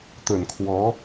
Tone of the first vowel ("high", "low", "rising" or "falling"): low